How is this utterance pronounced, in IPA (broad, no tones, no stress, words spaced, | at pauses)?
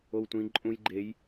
owtʷĩ ǃʼũj ɡ͡ǃej